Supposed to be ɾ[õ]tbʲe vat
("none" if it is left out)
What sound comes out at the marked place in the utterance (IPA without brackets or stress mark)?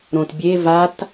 õ